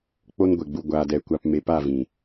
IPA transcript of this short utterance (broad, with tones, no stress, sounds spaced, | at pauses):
k͡p o˦ n ɡʷ e˨ ɡ͡b u˧ ɡʷ aː˨ d ɛ˨ kʷ a˧ p m e˨˦ p a˦˨ v ĩ˨